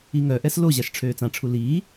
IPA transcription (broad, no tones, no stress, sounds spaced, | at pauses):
i ŋ œ ʔ ɛ s l o ʑ a ʃ ʈ͡ʂʰ øː t͡s ã ʈ͡ʂʰ u l iː